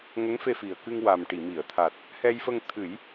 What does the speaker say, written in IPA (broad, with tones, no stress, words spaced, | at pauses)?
ŋə˧˥ŋfe˧fi˨˩ə̯kɨ˧ŋ wa˨˩mʈi˨˩˨ mi˨˩˨ə̯t̪ʰa˨˩t̚ | hɛ˧jfə˧ŋ t̪ʰɨ˨˩˦j